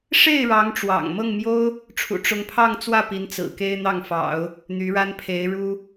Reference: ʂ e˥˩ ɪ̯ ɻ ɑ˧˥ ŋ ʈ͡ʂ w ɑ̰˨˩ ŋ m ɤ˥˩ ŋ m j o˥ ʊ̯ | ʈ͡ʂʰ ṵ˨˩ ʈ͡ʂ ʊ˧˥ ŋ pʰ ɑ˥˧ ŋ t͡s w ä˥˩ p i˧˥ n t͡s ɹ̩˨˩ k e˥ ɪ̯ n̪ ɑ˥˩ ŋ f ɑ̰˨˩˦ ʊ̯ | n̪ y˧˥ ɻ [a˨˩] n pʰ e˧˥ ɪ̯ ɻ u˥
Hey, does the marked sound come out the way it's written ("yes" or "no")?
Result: no